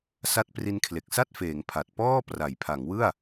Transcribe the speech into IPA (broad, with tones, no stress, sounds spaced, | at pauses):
s a˥˩ t̚ p r i˦˥ n kʰ l e˨˩ k̚ s a˥˩ t̚ f eː˩˦ ŋ pʰ a˨˩ t̚ p ɔː˥˩ p r a˩˦ j pʰ a˩˦ ŋ w ɯ˥˩ a̯